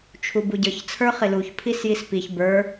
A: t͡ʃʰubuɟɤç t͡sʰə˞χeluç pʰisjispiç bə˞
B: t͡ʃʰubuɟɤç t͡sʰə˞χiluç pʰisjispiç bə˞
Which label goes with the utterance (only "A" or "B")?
B